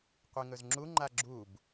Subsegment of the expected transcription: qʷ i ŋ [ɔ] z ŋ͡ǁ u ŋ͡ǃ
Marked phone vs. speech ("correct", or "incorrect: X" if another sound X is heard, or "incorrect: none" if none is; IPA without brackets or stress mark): incorrect: ɵ